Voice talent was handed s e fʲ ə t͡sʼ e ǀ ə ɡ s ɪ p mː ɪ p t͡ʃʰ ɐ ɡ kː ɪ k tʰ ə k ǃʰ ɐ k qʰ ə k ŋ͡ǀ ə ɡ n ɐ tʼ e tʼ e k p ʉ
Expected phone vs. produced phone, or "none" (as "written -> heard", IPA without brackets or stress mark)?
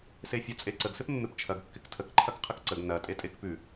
ŋ͡ǀ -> ǀ